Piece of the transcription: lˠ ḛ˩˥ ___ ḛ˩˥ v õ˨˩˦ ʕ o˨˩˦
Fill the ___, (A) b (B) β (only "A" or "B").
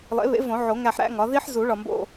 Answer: B